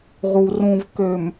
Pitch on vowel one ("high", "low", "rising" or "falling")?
low